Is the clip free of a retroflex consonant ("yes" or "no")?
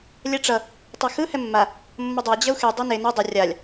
no